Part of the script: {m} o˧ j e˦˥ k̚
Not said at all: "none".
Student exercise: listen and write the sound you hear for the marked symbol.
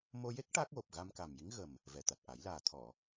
m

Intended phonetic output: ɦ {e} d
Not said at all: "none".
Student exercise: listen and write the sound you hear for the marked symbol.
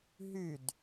y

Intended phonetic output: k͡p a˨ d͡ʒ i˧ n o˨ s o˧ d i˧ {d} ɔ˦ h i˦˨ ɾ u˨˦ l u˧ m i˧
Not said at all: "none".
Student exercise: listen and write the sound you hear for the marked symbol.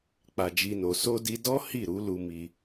d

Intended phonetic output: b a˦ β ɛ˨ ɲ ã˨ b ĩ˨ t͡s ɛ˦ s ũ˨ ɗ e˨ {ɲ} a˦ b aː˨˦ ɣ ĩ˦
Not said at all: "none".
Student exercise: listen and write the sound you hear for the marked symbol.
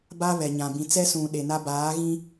n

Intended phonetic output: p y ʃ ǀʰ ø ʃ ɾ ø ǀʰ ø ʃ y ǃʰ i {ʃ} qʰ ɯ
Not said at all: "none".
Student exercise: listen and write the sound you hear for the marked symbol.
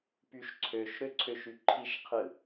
ʃ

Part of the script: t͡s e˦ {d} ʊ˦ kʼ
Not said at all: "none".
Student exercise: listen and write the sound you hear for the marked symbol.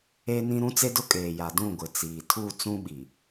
d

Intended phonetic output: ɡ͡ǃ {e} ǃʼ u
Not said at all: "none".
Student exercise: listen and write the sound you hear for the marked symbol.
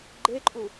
e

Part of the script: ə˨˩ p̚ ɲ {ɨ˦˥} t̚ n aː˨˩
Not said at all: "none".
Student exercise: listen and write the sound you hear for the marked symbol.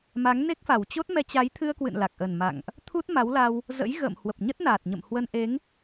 ə˦˥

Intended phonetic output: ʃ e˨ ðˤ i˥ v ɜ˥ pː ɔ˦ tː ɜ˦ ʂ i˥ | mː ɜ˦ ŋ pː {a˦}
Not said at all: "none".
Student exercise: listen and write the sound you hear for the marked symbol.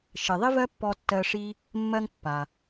a˩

